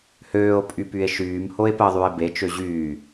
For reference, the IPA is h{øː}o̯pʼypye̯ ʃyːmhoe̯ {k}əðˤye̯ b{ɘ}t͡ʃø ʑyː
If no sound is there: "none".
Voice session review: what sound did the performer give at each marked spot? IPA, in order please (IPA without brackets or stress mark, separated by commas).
øː, p, e